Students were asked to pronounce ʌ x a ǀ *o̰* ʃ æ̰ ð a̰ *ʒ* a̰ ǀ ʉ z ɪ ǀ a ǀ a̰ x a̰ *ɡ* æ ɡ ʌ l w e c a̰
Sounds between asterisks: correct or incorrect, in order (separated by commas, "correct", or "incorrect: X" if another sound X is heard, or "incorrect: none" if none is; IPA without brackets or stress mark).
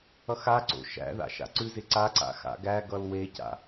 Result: correct, incorrect: ʃ, correct